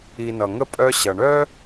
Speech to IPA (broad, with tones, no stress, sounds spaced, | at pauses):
i˨ n ʌ˩ ŋ ə˥ pʼ œ˦ ɕ ʌ˩ ɳ œ˥